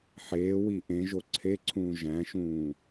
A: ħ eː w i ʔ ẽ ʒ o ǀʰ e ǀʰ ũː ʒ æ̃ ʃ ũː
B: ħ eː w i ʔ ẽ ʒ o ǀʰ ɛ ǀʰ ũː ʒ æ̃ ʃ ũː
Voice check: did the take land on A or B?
A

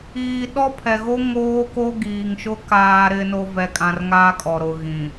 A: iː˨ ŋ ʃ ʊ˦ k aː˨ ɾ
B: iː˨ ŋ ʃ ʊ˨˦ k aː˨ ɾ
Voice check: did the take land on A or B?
A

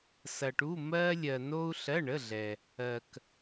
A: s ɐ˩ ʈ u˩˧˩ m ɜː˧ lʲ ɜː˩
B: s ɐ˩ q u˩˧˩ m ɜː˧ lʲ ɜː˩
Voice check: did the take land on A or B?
A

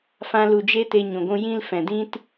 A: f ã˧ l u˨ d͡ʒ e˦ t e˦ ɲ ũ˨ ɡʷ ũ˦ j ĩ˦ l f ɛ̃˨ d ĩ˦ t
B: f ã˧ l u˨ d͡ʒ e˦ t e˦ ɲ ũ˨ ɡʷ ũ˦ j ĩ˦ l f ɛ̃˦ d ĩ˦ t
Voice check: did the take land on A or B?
A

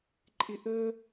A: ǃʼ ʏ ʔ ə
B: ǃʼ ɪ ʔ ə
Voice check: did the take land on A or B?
B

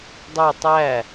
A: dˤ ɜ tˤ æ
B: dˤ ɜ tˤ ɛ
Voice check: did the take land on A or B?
A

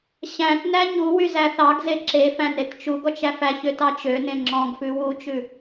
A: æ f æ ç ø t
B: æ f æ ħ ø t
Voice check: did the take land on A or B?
A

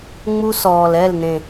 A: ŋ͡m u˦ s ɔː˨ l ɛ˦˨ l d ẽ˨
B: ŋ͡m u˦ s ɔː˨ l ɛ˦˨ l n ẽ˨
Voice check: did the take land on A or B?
B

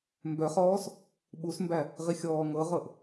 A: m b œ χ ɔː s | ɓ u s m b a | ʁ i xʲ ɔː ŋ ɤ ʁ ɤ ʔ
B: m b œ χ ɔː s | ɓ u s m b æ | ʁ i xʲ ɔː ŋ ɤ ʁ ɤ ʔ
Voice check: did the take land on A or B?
B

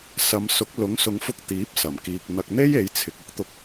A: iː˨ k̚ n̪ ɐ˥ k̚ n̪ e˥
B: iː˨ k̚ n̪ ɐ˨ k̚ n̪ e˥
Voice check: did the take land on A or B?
B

